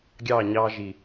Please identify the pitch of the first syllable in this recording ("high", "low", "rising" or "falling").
falling